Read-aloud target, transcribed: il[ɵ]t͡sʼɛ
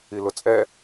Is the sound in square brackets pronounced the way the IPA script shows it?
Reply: no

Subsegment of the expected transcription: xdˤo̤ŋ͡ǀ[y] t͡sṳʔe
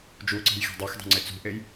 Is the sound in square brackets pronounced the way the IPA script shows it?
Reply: no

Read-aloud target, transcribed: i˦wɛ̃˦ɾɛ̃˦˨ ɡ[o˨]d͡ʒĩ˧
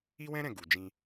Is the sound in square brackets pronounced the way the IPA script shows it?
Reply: no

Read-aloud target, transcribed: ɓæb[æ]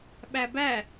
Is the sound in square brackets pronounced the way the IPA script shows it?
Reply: yes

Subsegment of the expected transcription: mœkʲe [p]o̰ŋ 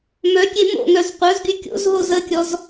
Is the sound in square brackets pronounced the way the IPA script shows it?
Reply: no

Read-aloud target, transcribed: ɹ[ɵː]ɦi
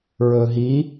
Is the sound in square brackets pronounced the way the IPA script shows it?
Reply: yes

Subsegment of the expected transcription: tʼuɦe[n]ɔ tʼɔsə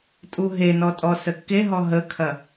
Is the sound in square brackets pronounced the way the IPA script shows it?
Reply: yes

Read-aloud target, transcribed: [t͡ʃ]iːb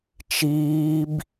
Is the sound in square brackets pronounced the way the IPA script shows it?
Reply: yes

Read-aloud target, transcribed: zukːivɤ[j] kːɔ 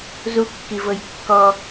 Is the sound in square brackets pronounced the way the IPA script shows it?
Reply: yes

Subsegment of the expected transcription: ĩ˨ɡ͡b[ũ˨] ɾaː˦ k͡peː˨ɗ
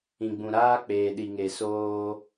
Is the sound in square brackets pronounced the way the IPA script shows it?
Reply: yes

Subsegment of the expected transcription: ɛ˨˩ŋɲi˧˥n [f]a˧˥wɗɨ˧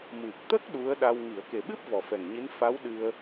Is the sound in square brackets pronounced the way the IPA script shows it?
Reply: yes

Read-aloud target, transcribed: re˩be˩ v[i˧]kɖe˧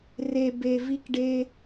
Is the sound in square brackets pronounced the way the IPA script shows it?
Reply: yes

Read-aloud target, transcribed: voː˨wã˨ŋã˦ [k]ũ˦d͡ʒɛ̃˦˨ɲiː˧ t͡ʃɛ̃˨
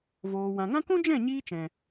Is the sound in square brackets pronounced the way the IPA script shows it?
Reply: yes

